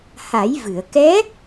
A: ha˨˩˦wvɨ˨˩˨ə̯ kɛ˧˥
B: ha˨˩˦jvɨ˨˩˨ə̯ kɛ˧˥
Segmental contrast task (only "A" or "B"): B